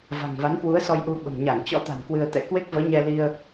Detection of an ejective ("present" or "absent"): absent